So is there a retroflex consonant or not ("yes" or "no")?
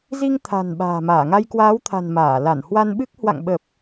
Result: no